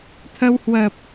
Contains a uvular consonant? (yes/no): no